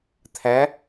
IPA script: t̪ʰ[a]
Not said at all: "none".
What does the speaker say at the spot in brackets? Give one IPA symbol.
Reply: æ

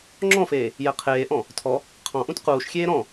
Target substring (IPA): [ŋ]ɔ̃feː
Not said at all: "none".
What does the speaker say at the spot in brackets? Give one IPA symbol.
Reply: ŋ͡ǁ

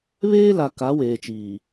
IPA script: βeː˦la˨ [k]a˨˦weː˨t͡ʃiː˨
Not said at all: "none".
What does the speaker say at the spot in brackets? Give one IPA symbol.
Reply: k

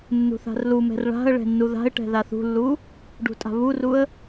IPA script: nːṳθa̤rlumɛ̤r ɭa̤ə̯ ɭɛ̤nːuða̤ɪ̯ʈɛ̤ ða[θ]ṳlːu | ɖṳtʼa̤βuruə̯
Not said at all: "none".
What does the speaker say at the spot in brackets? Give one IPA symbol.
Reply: θ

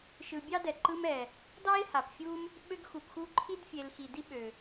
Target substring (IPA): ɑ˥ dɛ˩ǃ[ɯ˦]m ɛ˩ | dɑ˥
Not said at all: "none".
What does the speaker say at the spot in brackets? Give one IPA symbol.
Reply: ɯ˦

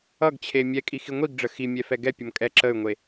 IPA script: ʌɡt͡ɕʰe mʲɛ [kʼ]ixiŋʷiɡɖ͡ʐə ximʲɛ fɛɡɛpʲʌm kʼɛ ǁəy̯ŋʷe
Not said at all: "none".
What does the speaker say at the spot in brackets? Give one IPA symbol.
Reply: kʼ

